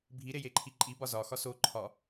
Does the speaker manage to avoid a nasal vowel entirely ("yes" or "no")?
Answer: yes